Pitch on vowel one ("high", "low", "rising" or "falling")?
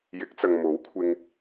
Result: rising